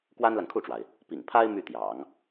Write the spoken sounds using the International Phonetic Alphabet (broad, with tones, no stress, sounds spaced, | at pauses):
k w a˥ n l a˨ n kʰ u˥˩ ʈ͡ʂ w a˩ ɪ̯ | p ḭ˨˩ ŋ pʰ a˥ ɪ̯ m y˥˩ t̪ j ɑ̰˨˩˦ ŋ